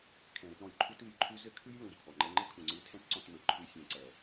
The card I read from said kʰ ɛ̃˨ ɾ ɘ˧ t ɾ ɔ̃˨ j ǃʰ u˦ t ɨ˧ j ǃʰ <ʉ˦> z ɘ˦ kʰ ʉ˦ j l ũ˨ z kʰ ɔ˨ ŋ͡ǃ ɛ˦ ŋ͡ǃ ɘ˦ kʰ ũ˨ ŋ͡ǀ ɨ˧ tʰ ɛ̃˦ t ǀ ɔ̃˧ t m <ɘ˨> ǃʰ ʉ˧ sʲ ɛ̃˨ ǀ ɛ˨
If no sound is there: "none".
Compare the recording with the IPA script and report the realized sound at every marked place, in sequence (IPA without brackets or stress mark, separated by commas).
ʉ˦, ɘ˨